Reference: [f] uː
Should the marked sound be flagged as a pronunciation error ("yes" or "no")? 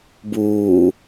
yes